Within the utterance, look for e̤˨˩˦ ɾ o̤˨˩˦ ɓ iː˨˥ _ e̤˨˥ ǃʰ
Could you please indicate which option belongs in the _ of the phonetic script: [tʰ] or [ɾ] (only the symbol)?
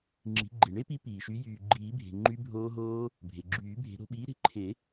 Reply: ɾ